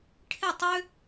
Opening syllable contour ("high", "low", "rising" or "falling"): falling